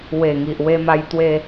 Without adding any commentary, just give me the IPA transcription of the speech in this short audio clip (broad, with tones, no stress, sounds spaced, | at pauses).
w e˨˩ ŋ i˨ ʔ w e˧ m a˧ j t̪ w e˧